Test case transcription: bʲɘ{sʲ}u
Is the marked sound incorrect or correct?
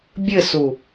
incorrect